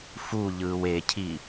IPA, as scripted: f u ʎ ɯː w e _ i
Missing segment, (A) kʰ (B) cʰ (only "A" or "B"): B